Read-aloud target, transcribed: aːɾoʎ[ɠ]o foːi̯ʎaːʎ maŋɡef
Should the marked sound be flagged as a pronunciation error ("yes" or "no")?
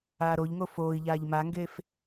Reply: yes